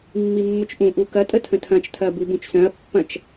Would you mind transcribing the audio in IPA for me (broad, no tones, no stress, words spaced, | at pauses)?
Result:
mːimːʊt͡ʃʔũʔu kɐtʼə tʰə̃tʰɐ̃t͡ʃtʰɐ bubũt͡ʃsœ̃ɐ̯ pːɐ̃t͡ʃ